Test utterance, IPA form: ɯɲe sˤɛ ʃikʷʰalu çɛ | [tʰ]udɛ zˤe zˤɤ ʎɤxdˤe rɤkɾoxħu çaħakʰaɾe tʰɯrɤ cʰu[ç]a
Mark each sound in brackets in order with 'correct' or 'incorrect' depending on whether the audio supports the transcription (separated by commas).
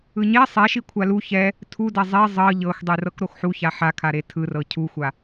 correct, incorrect